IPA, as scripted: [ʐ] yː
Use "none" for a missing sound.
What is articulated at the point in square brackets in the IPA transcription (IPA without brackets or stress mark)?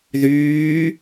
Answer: ð